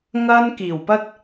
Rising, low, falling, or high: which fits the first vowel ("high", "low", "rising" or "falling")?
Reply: high